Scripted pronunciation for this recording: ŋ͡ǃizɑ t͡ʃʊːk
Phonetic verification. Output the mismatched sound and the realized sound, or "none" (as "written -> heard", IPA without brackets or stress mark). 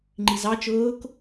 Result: none